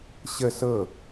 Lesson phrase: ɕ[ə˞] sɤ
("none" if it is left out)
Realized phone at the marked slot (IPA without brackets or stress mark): ə